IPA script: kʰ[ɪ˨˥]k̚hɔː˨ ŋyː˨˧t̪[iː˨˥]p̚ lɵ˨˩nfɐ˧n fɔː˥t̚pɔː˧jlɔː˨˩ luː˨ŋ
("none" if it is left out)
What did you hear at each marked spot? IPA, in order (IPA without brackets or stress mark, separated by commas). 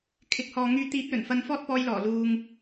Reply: ɪ˨˥, iː˨˥